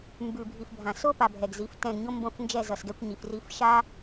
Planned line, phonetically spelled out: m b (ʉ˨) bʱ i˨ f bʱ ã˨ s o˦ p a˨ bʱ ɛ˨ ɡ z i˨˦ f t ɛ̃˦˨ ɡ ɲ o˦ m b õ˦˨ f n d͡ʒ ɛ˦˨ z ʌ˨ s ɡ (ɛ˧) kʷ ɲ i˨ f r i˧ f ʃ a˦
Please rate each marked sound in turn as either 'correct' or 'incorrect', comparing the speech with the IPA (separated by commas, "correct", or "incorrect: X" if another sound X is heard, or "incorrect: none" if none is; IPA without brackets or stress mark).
correct, correct